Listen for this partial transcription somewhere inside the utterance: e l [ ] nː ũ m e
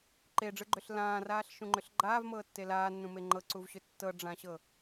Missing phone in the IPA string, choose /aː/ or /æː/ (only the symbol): aː